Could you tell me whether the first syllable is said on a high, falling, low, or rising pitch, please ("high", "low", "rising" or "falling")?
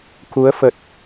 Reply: rising